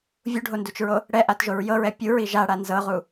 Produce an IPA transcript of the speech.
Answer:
vʲ u ɖʱ o n d u t͡ʃ ɹ o | ɽ ɛ ʔ a t ʒ o ɹ j ɤ ɹ ɛ pʲ u ɹ i ʒ a ɽ a n z ɤ ʁ u

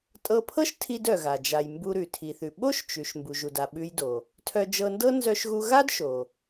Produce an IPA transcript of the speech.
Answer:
tʼ ɤ˧ pʰ ɤ˥ ʃ tʰ i˧ d œ˩ ɣ a˩ d͡ʒ a˩ j m b u˧ ɾ ʉ˩ tʰ i˩ θ ʉ˩ ɓ o˥ ʃ t͡ʃ ʉ˩ ʃ m b u˩ ʒ u˩ d a˩ ɓ ʉ˧ j d o˩ | tʰ œ˧ d͡ʒ ɤ˧ n d ɤ˥ n z œ˧ ʃ ɣ u˧ ɣ a˥ d ʃ o˩

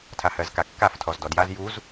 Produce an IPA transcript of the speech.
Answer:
tʰ a h ɜ z k a kː a f tʰ ɔ z d ɔ d j a z j u z

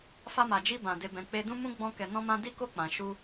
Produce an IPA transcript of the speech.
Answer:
f a˧ m a˨ d͡ʒ i˧ b ã˨ d e˧ b ɛ̃˧ k͡p e˧ d ũ˦ m ũ˦ ɡ͡b ɔ̃˦ k ɛ˧ n ɔ̃˦ m ã˦ d i˦ k o˦ k͡p ã˧ ʃ u˦

